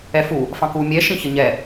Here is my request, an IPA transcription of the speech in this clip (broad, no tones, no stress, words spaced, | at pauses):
ɛfu | fɑ̃ku mʲɛ ʃĩçəɲɛ